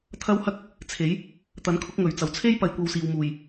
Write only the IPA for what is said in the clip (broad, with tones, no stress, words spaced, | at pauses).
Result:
t̪ʰɐ˥whɐ˥k̚ | t͡sʰe˨˥j | t̪ɐ˨˥nkʰʊ˨˥k̚ ŋɵ˨˩ɥt͡sɐ˨˩wt͡sʰe˥j pɐ˧jkʷɐ˧wsiː˨w muː˨˩j